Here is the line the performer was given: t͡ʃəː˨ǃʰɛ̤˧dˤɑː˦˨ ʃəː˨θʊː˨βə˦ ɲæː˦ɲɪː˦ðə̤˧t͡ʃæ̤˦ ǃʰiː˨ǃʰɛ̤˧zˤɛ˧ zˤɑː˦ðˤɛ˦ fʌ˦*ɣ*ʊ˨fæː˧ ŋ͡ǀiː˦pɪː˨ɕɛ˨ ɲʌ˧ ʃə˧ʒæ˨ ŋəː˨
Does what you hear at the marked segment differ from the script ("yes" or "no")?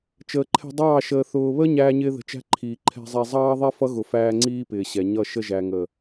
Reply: no